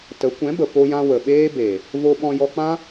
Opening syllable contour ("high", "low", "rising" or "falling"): rising